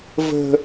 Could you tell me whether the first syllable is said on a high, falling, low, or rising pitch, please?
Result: high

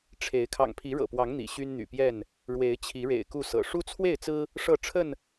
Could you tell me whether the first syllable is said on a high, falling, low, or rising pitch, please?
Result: rising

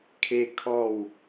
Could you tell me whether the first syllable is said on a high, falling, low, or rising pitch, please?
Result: falling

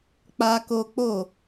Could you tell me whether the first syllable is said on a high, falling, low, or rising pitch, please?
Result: high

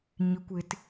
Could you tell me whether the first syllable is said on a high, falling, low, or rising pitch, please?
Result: high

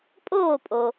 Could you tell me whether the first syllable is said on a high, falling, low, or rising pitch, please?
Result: falling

